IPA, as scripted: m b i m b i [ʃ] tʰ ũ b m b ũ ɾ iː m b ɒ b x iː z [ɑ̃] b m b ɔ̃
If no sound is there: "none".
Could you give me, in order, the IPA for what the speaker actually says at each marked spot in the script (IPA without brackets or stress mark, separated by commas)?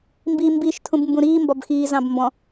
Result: ʃ, ɑ̃